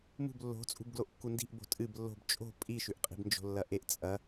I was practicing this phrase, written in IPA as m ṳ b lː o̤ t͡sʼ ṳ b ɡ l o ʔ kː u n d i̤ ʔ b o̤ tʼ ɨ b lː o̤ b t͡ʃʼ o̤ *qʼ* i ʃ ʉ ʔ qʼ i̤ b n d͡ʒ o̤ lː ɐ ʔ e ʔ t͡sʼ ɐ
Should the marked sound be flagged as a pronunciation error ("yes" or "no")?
yes